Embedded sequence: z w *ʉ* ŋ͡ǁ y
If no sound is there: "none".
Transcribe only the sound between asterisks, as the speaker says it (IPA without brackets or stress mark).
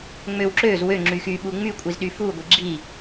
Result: ø